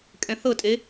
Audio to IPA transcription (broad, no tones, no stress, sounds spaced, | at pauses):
kʼ ɛ̃ θ ɤ tʼ e